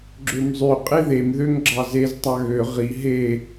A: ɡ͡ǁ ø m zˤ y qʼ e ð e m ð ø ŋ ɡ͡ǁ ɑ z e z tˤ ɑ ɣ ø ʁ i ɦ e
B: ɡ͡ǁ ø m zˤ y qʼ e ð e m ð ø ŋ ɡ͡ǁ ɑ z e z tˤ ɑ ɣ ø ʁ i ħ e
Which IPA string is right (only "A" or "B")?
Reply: A